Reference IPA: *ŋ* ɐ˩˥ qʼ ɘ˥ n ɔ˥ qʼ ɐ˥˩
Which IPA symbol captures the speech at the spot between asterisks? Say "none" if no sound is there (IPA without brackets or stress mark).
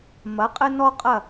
m